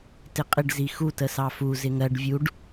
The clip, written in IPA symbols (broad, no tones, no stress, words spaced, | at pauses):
tɪqʼɪɖ zixu təsɑfu zɪŋɜɖ vʲuɖ